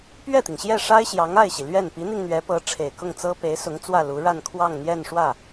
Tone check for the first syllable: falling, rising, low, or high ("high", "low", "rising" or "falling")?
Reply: falling